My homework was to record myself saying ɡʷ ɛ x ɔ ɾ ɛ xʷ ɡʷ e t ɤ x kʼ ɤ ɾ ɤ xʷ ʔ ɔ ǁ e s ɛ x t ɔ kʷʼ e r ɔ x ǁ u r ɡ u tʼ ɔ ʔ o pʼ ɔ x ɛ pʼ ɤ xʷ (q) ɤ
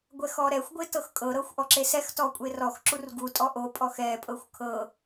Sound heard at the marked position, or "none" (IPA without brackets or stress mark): kʰ